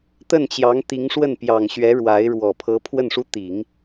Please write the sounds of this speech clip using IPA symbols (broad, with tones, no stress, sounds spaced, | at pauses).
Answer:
t̪ ə˥˩ n t͡ɕ j ɑ˧˥ ŋ t̪ i˧˥ ŋ ʂ w ə˥˩ n p j ɑ˨˩ ŋ ɕ ɥ ɛ˧˥ ɻ w a˧˥ ɪ̯ ɻ w ɔ˨˩ pʰ ɤ˧˥ pʰ w ə˥˩ n ʂ u˥ t̪ i˨˩˦ ŋ